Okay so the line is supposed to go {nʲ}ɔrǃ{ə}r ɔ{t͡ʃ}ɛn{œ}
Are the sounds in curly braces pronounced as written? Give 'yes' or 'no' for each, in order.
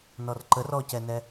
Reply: no, yes, no, no

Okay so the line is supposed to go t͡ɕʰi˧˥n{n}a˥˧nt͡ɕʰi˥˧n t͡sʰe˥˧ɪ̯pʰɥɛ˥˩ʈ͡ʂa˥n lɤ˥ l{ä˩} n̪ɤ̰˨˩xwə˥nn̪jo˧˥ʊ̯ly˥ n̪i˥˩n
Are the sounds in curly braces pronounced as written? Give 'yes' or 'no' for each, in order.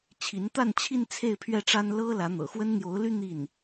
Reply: no, no

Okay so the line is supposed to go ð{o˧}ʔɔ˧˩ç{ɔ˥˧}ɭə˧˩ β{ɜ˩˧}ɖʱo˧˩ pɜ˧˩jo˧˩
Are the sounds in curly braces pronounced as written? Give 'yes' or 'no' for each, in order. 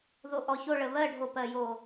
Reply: yes, no, no

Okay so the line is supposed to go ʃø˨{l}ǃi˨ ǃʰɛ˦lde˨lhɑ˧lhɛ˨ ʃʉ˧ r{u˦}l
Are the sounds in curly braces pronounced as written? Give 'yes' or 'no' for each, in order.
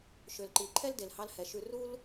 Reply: yes, yes

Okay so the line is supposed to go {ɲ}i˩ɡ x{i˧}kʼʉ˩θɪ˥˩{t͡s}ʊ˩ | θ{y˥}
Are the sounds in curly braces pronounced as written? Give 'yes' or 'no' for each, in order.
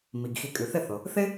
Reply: no, no, no, no

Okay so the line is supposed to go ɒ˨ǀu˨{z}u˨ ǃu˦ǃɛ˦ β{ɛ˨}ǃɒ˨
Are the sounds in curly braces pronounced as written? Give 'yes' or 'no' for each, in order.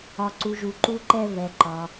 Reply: no, yes

